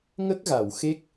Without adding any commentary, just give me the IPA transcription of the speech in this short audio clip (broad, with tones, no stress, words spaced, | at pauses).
ŋə˦˥k̚ɣa˨˩˨w xe˦˥k̚